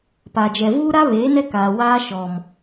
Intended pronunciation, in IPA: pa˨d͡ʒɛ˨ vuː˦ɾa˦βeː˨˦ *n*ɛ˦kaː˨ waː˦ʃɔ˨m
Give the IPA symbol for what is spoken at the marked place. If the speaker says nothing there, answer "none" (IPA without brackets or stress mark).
n